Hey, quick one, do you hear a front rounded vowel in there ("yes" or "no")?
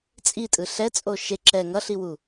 no